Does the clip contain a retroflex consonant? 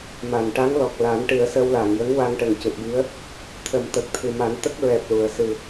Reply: yes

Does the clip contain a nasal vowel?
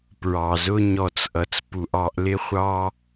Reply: no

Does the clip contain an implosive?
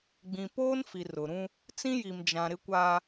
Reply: no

